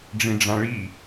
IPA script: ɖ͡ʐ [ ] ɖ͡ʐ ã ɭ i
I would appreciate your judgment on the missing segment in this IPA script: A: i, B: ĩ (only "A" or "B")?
B